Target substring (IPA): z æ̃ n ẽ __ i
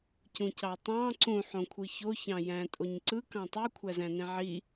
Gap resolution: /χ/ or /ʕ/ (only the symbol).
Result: ʕ